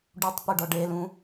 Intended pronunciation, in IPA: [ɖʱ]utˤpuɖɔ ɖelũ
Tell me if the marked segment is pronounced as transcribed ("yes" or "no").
no